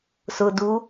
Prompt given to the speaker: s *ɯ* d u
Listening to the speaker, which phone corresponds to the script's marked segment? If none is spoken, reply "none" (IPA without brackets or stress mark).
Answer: ʊ